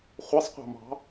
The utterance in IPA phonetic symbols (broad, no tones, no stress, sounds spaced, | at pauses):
χʷ e sˤ qʷ ɑ̤ m ɑ̤